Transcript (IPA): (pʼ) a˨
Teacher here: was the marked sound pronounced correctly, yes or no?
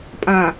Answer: yes